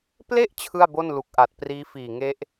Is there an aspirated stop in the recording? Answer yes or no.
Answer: yes